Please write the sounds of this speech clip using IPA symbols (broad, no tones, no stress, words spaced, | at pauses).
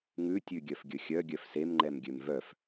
ŋʉtʲʉɡʲœf ɡʲɵxʲœ ɡʲœfsemŋ͡ǃɛm ɡʲømvœf